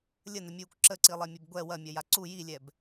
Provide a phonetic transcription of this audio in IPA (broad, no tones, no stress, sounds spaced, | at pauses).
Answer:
lʲ ə n ə mʲ uː kʷ ǁ ə ǀ i lˠ ɛ mʲ ɵ b ɡʷ ɛ w ɐ mʲ ɐ j a ǀ u j i lʲ ɛ b